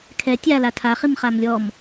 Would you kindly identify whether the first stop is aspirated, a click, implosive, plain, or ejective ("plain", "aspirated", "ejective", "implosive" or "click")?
aspirated